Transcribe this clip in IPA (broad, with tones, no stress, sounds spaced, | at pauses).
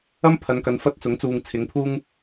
ɐ˥ m pʰ ɐ˨˧ n k ɐ˨˧ n f ɐ˥ t̚ t͡s ʊ˨˥ ŋ t͡s uː˨ ŋ t͡sʰ ɪ˨˧ ŋ pʰ uː˥ ŋ